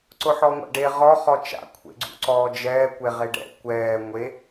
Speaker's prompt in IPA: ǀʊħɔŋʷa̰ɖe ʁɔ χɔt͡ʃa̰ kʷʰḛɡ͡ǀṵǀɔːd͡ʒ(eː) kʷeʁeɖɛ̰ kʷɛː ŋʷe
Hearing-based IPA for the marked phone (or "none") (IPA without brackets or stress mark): ɛː